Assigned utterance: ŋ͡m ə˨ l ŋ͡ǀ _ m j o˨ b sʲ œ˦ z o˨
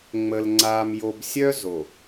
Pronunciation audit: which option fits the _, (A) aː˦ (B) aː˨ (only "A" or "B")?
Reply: B